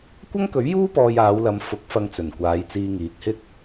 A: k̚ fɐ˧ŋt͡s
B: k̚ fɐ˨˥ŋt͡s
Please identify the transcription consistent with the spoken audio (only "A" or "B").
A